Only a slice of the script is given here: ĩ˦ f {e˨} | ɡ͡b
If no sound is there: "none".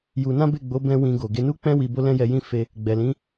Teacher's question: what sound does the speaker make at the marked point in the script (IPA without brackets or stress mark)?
e˧